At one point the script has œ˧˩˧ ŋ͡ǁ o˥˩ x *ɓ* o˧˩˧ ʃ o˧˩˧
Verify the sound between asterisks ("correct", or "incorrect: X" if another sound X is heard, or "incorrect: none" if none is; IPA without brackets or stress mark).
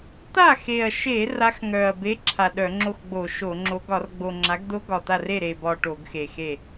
incorrect: ɡ͡b